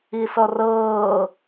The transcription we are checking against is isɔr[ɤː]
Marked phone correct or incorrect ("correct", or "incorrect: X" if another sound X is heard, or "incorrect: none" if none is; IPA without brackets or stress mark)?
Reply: correct